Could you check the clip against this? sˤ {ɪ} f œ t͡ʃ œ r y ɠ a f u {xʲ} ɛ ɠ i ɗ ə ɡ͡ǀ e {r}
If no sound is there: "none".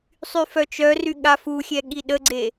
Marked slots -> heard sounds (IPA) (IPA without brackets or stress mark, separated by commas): y, xʲ, none